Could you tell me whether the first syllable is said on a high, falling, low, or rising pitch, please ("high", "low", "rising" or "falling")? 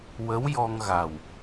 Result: rising